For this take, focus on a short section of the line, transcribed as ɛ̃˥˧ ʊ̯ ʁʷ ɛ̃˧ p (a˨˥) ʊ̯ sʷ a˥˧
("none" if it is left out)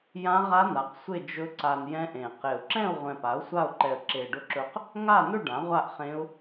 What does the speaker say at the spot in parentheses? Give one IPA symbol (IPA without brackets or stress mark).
a˨˥